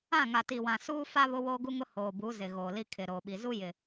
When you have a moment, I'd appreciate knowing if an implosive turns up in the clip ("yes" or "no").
yes